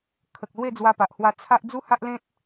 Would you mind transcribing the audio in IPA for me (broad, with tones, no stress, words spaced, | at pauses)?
kʰə˨k̚ lwe˥˧d͡zwa˧pa˨ʔhwa˧ t͡sʰa˦ʔ d͡zu˦ha˦ʔlẽ˦t̚